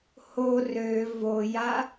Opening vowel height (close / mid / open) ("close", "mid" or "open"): mid